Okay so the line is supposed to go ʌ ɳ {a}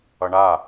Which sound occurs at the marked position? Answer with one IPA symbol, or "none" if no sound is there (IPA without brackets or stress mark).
a